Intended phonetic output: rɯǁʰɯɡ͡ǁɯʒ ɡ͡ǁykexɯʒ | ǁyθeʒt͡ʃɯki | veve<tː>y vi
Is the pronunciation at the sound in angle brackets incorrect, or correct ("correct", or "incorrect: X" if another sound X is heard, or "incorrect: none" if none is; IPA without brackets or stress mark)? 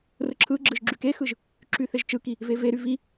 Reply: incorrect: ɾ